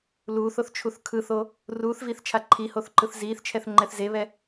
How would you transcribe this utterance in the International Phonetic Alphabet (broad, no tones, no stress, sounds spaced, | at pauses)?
l uː θ o θ t͡ʃʰ u θ kʰ ɯ θ o | r uː θ v iː θ t͡ʃʰ a ǃʰ i h o θ ǃ ɯ θ z iː θ t͡ʃʰ ɛ θ ŋ͡ǃ ɛ θ z e β ɛ